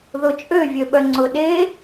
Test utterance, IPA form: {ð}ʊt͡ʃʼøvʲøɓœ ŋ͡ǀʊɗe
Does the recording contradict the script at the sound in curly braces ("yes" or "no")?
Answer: no